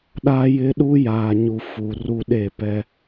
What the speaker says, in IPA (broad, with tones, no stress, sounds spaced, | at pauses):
ɗ a˦ j ɪ˦ ɗ u˦ j aː˨ ɲ u˨ f u˨ r u˦ ɗ e˦˨ p ɛ˦